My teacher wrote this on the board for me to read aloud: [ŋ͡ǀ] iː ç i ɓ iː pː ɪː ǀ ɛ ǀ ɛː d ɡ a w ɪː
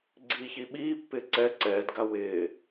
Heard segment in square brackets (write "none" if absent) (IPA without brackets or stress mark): ɡ͡ǀ